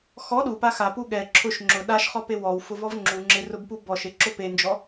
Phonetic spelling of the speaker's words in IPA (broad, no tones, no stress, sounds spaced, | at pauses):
x ɔ ɗ u p a x a p u ɠ ɛ ǁʰ ʊ ʃ ŋ͡ǁ ʊ ɗ a ʃ χ ɔ p e w ɔ w f ʊ v ɔ v ŋ͡ǁ u ŋ͡ǁ ɪ r ʊ b p u b ɔ ʃ e ǁ ʊ p e n d͡ʒ ɔ